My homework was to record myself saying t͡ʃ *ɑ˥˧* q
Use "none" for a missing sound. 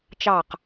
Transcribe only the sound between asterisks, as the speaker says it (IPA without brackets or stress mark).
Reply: ɑ˥˧